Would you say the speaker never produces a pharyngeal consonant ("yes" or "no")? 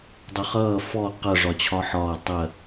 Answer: no